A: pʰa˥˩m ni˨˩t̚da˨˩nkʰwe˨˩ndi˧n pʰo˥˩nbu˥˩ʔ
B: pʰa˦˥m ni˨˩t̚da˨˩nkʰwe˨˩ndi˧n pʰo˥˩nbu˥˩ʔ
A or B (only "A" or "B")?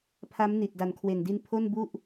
B